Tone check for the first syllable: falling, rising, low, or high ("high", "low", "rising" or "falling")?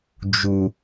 low